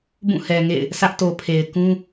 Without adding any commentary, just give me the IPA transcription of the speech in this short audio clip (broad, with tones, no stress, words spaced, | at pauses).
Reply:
bũ˦˨hɛ˨ŋḛ˦˨ɪ̯ | sʰä˦ʔto˨pʰe˨ɪ̯ kũ˦